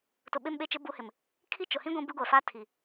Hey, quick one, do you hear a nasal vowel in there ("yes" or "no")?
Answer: yes